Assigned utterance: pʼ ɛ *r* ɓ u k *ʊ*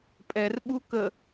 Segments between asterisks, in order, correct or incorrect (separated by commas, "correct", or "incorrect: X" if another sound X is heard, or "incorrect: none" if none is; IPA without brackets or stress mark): correct, incorrect: ə